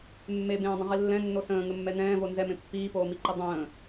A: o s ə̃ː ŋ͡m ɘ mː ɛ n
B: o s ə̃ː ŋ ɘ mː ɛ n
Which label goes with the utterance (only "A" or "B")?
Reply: B